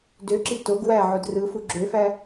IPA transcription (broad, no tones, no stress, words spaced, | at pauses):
døǁi toɡ wæ ʕodrɯfu ɡ͡ǁøfæ